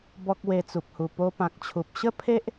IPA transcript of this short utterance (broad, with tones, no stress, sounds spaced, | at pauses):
b ɔ˦ k̚ w e˧ t͡s u˨ p̚ h u˨˩ p o˧ p ã˨ k̚ t͡ɕʰ u˨ p̚ ɕ ə˥˧ pʰ e˦ ʔ